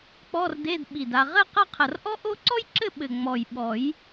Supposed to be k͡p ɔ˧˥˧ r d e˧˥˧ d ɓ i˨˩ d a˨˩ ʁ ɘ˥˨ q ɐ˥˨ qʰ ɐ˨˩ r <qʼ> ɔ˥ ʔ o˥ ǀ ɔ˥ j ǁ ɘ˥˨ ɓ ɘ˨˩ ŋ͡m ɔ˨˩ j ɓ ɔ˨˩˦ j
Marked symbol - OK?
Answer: no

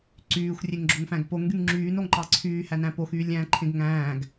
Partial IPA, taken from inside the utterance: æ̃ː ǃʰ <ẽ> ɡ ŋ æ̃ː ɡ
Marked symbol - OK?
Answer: yes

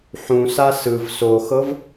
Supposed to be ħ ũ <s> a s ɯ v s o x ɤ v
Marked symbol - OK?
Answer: yes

